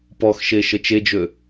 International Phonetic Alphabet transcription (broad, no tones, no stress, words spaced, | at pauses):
pɔxʃe ʃət͡ʃed͡ʒø